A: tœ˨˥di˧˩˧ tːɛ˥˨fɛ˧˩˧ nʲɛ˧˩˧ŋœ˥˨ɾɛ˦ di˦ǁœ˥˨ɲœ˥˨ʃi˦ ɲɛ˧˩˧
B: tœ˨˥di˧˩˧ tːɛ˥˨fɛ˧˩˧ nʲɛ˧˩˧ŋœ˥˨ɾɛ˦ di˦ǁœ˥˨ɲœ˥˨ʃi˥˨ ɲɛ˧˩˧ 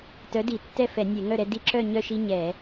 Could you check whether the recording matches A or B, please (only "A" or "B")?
A